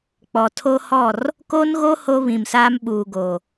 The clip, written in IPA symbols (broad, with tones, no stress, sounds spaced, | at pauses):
k͡p ɔ˨ tʰ o˦ h ɔ˦˨ r | k oː˦ n ɣ o˦ h o˦ β ĩ˨ m s aː˦ m ɓ uː˨ ɡ o˨